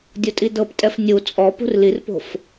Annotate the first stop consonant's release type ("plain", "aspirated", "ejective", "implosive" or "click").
plain